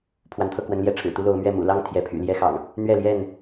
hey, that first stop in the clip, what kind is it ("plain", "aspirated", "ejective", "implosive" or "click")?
aspirated